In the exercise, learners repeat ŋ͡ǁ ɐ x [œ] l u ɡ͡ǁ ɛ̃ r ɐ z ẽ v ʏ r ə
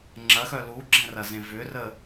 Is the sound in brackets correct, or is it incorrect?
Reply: correct